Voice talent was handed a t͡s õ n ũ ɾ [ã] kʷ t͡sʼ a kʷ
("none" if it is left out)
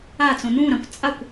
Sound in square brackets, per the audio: ã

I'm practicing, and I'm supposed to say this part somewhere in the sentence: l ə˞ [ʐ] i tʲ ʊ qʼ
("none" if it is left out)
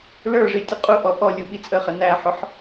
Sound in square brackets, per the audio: ʐ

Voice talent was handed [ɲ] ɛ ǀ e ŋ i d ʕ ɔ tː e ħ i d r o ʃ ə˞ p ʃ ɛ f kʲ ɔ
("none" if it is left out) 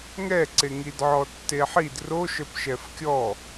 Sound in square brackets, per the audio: ŋ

